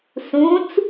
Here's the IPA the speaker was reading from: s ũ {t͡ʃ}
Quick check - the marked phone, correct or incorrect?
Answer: incorrect